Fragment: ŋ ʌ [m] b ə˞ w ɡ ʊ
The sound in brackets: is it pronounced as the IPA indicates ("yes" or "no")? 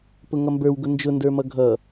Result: yes